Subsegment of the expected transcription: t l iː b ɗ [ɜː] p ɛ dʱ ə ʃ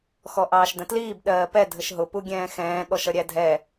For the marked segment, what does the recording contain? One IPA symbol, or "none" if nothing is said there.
ɜː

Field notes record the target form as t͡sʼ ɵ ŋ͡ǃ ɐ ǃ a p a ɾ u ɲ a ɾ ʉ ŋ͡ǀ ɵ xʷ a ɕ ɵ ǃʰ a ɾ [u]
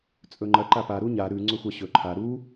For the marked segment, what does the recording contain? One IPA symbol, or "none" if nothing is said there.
u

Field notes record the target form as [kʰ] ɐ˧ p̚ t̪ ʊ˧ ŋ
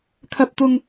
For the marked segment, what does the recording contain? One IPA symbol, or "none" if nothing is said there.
kʰ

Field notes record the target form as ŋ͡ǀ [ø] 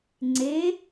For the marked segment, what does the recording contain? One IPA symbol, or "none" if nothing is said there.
e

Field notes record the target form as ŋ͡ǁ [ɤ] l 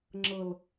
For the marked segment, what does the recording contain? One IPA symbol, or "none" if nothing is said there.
ɤ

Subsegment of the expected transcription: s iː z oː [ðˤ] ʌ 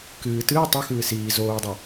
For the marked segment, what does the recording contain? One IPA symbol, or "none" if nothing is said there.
dˤ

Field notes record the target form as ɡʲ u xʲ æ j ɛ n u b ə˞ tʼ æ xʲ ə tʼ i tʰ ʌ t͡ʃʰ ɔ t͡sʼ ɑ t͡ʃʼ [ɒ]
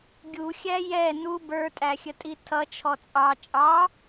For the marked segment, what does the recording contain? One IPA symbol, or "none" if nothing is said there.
ɑ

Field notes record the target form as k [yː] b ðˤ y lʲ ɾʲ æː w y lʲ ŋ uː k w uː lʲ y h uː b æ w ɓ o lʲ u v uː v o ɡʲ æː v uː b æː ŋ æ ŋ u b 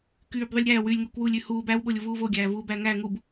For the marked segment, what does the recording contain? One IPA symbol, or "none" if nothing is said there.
yː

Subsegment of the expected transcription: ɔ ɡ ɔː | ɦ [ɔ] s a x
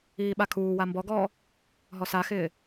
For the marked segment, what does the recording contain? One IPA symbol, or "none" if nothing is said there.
ɔ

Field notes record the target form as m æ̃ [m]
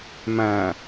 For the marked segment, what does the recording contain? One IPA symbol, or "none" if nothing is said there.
none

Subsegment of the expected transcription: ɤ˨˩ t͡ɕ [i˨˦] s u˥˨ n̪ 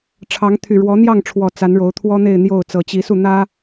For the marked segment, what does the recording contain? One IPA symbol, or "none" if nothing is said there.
i˨˦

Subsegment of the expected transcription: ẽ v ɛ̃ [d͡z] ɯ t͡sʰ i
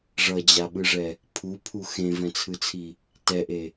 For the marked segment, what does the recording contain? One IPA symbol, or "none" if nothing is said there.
t͡sʰ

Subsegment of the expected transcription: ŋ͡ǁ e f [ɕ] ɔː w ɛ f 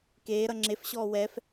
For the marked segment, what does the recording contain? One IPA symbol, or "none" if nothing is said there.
ɕ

